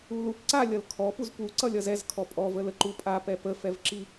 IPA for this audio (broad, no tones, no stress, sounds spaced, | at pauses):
u l u p ǀ a lʲ ʌ l kʰ ɔ p u z p u ǀ ʌ lʲ ʌ z ɛ z kʰ ɔ pʼ ɔ v ə l ə ǃ u pʼ a p ɛ p ə f ɛ v ǁ i